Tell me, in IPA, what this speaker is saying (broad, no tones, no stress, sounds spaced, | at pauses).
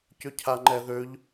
c ø cʰ a ŋ͡ǃ ɛ ð ø ʎ